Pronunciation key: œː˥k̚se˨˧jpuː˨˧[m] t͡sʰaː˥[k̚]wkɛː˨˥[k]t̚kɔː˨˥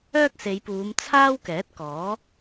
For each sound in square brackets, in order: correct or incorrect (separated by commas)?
correct, incorrect, incorrect